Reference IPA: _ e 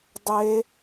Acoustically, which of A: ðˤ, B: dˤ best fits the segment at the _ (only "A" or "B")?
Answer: B